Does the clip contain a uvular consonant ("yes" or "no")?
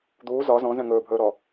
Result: no